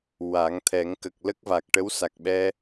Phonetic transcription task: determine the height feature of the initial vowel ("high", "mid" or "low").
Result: low